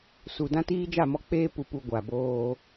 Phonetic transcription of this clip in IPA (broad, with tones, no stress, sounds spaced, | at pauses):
s u˨ d ã˦ t iː˦ d͡ʒ a˦˨ m ɔ˦ k͡p eː˦ p u˨ p u˨ ɡʷ a˨ b oː˦